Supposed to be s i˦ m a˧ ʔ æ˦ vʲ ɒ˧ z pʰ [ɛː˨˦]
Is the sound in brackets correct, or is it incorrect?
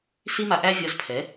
incorrect